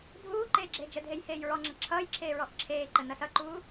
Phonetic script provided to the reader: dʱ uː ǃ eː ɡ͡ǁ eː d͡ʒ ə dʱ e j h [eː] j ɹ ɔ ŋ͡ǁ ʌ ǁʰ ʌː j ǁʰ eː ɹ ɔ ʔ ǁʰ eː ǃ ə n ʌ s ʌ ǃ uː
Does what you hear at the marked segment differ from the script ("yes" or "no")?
no